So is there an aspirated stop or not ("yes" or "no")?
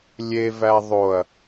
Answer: no